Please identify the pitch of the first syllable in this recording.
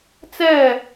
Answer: falling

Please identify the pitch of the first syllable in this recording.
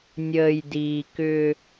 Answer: low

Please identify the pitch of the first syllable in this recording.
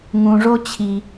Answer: low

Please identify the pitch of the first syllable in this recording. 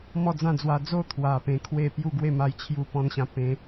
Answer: falling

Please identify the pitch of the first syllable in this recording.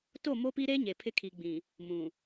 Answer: falling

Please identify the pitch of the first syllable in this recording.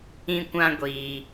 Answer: high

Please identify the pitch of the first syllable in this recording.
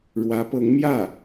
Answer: rising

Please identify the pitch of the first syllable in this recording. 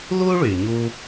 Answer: high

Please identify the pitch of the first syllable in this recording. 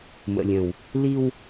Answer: low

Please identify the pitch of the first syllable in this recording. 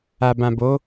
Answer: low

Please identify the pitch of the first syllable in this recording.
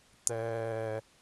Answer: low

